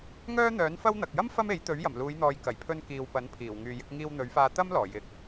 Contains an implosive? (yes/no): no